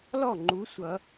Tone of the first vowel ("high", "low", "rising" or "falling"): falling